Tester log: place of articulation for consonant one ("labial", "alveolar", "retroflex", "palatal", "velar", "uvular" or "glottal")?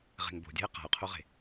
uvular